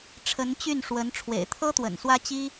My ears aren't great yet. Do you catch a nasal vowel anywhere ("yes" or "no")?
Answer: no